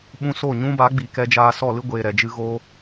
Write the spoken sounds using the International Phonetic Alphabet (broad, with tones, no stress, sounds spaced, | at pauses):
ɓ ũ˧ s o˦˨ ɲ ũ˦ b a˨˦ ɡ͡b iː˨ k ɛ˧ d͡ʒ aː˧ s ɔ˦˨ l ɨ˦ ɡʷ eː˨ ɾ ɛ˨ d͡ʒ ɨ˧ ɣ o˧